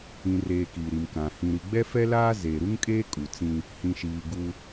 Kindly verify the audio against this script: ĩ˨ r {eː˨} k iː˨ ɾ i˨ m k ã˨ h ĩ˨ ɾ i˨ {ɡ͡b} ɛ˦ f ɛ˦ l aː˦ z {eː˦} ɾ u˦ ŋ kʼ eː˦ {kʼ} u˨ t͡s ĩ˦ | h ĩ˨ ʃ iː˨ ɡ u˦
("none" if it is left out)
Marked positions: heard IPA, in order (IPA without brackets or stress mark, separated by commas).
eː˨, ɡ͡b, eː˨, kʼ